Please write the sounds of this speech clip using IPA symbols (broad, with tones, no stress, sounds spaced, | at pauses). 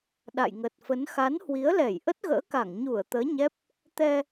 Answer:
ɗ a̰˧˨ j ŋ ə˨˩ t̚ f ə˨˦ n x a˨˦ n h w i˨˦ ə̯ l ɛ˧˩ j ʔ ə˦˥ t̚ ɣ ə̰ː˧˥ k a˧˩ ŋ ɲ u˧˩ ə̯ t̪ əː˨˦ ɲ ɛ˦˥ p̚ | t̪ ɛ˧